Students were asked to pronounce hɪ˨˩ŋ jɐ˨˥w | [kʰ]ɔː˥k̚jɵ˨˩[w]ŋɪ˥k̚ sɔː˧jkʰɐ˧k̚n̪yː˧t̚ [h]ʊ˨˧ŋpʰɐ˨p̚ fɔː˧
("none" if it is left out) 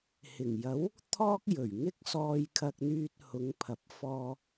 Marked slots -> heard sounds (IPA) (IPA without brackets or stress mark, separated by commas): t̪ʰ, ɥ, h